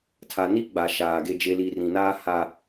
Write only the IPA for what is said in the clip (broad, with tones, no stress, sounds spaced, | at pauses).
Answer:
tʰ a˨ n i˦ ɡ͡b a˨ ʃ aː˨ ɡ e˨ d͡ʒ e˨ l i˨ r ĩ˨ n aː˦ h a˦